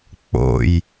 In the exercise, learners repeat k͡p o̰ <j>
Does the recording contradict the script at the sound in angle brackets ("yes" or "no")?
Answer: no